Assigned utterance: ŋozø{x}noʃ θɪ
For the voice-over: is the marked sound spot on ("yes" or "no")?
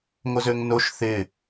no